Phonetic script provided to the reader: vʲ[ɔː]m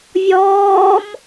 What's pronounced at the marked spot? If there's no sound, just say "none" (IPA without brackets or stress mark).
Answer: ɔː